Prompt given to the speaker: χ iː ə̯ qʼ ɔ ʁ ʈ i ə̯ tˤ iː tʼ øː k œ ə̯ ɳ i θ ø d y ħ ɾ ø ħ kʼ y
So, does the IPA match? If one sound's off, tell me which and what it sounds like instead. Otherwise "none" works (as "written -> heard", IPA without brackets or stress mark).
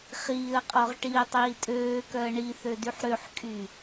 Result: none